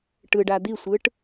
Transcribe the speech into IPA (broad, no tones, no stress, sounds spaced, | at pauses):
ʈ ɯ ɖ a d̪ i sʷ ɯ ʈ